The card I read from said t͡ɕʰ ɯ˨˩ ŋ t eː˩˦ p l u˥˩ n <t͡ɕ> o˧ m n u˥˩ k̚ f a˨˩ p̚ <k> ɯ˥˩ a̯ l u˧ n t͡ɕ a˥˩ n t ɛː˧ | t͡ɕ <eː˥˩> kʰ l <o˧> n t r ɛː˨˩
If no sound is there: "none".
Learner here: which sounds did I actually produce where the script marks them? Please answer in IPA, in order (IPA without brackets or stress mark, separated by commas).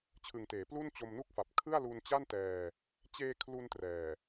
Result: t͡ɕ, kʰ, eː˧, u˧